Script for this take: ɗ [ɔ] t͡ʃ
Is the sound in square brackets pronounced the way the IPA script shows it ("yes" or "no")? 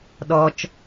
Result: yes